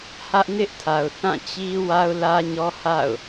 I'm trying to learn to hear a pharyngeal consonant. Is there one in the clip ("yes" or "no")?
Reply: no